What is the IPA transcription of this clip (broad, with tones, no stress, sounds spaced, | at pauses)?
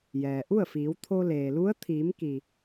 j ɛː˩ ʔ u˥˨ ə̯ f iː˩˧ w t̪ʰ o˧ l eː˩ l u˧˥ ə̯ t̪ʰ iː˩˧ m k i˩